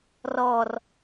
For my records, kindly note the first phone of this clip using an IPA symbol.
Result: r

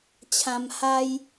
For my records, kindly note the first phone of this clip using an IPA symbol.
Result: t͡ɕʰ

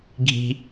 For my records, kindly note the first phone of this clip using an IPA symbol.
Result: ɡʱ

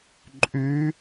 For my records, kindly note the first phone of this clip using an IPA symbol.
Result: ǃʼ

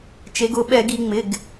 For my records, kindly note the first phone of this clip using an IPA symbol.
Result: t͡ʃ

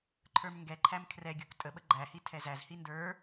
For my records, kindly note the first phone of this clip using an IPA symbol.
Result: ǃʰ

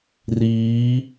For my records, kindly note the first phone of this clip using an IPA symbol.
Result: r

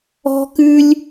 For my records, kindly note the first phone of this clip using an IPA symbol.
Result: ɔ̤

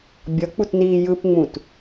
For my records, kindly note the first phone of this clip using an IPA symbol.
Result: bʲ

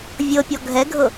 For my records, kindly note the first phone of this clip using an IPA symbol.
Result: vʲ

